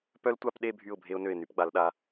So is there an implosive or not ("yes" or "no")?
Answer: yes